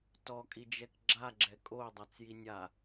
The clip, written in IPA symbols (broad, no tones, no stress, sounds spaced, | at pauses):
t ɔ kʼ i d͡ʒ ɛ k ɡ͡ǁ a ɡ͡ǁ ɛ kʼ o dˤ a t͡s j i nʲ a